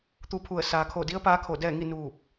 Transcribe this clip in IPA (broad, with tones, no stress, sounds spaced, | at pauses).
t̪ u˧ pʰ u˧˩ ə̯ s aː˩ kʰ o˧˩ d i˧˥ ə̯ p aː˧˥ kʰ o˧˩ d ɛː˥˨ ŋ i˥˨ n uː˧˩ p̚